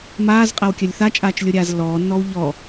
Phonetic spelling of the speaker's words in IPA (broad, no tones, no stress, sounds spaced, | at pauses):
m aː z qʼ a w kʲ ɐ lʲ θ a t͡ʃʼ aː t͡ʃ lʲ o ɾʲ aː z lː ɔː nː ɔː w ʎ ɔ